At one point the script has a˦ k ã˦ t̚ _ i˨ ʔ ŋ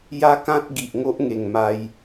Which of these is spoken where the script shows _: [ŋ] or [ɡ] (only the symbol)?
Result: ɡ